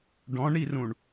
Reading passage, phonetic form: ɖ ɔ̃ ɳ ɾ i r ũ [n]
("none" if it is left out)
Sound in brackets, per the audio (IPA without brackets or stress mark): ɳ